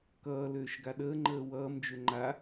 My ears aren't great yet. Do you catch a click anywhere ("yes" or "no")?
yes